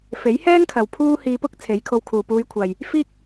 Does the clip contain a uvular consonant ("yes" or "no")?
no